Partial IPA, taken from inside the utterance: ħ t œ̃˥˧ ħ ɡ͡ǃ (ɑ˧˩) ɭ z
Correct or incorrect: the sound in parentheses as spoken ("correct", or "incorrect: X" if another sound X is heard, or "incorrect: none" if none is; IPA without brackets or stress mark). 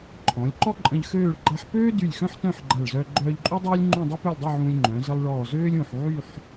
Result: incorrect: a˧˩